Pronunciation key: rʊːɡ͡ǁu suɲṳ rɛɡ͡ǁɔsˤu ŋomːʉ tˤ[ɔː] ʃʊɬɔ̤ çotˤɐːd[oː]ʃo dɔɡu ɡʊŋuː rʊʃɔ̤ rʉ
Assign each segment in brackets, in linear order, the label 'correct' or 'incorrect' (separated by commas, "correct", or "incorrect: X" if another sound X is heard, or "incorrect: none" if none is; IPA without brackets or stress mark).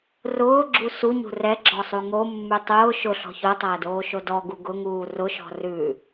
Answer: incorrect: ʊː, correct